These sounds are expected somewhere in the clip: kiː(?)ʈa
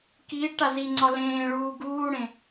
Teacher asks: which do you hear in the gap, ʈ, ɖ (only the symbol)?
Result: ɖ